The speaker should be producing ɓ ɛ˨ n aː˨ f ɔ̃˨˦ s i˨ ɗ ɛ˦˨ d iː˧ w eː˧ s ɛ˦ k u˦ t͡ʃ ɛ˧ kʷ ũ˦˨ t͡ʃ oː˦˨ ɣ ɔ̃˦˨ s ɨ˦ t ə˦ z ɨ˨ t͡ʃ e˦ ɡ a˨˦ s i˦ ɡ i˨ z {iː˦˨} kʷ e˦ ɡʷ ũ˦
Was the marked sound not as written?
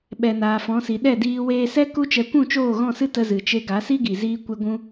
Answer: yes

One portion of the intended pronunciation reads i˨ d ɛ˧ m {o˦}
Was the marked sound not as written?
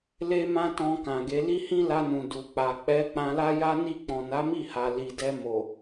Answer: yes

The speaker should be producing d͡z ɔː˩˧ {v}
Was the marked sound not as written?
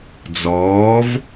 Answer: no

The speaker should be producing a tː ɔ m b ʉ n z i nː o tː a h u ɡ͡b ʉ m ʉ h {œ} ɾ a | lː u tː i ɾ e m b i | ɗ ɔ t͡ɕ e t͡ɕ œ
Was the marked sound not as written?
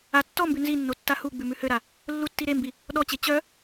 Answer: yes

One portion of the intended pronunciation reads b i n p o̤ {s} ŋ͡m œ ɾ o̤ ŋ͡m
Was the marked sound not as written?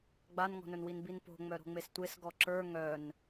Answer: yes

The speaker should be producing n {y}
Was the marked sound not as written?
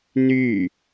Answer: no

